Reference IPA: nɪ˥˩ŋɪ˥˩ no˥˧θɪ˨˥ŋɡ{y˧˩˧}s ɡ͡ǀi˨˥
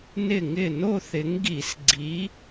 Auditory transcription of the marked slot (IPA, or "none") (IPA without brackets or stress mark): i˧˩˧